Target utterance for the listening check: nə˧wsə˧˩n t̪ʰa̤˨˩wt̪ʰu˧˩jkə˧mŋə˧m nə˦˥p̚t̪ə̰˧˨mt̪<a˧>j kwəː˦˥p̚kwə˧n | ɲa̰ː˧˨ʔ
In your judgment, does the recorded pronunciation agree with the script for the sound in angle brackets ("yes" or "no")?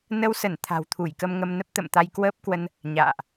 yes